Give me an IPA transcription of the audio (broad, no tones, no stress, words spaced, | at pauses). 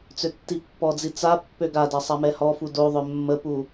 t͡søtːipːɔd͡zi t͡sa pːøɡada sˤamɛhɔfu doðˤœ mːəpu